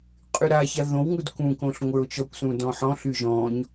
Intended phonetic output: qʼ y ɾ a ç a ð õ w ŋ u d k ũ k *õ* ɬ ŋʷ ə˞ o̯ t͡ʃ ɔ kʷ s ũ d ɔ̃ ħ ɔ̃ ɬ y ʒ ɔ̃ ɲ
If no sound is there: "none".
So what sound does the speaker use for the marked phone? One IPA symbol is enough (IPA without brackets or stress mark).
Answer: õ